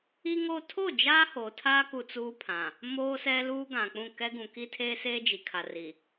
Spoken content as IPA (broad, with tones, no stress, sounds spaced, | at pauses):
i˦ ŋ o˦ tʰ o˦˨ d͡ʒ aː˦ h oː˨ tʰ aː˦ k u˦ t͡s uː˦ pʰ ã˨ | m oː˦ s ɛ˦ l uː˦ ɡ ã˨ k͡p ũ˦˨ k ɛ˦ ɡ ũ˨ k i˦ tʰ eː˦ s eː˦ d͡ʒ i˨ kʰ a˨ r i˨